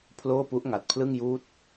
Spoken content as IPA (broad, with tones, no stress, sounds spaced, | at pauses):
pʰ l oː˥˩ p u˦˥ ʔ ŋ a˨˩ t̚ pʰ l ɯ˥˩ ŋ j uː˥˩ t̚